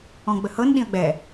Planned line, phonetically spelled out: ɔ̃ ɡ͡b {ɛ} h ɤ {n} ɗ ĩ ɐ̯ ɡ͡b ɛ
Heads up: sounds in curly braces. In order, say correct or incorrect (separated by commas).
incorrect, correct